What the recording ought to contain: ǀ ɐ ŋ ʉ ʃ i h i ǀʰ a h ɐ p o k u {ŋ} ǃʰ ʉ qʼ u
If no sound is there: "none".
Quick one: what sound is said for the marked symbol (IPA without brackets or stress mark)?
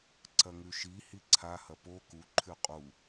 none